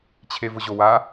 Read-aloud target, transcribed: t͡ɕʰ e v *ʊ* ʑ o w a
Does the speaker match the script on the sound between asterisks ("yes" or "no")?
yes